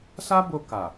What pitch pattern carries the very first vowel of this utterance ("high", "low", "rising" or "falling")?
high